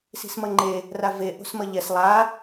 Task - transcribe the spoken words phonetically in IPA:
s i̤ s m ʌ ŋ͡ǃ e | r a v e ʔ o̤ s m ʌ ʎ ɛ s lˠ a

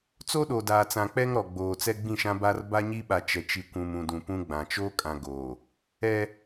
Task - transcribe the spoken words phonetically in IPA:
t͡s oː˦ ɗ oː˨ d aː˨ t͡s ã˨ k͡p ɛ˦ ŋ ɾ ɔ˨ ɡ͡b oː˨ t͡s ɛ˦ ɡ͡b ĩ˦˨ ʃ ã˦ b a˦ r b a˦ ɲ i˦ ɓ a˨ t͡ʃ ɛ˨ t͡ʃ i˨ kʷ ũ˨ m ũ˨ d ũ˨ p ũ˦ ɡ͡b ã˨ t͡ʃ oː˦ kʼ ã˨ ɡ oː˨ | ɛ˦

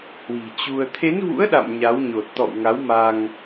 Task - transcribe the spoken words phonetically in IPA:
h w i̤˨˩ t͡ɕ u˧ ə̯ t̪ʰ e˨˦ n v ṵ˧˥ ə̯ ɗ a̰˧˨ m ɲ a˨˦ w ɲ o˨˩ t̚ t̪ ɔ̰˧˨ w ŋ a˨˦ w m a˧ ŋ

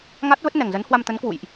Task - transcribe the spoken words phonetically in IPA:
ŋ a˦˥ t̚ v ə˦˥ t̚ n ɛ˨˩ ŋ z ə˨˦ n h w a˧ m t̪ ə˨˦ n k w ṵ˧˨ j ʔ

